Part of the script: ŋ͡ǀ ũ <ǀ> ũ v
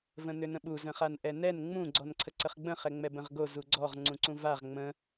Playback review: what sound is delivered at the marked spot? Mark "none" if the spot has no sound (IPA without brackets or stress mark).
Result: ǀ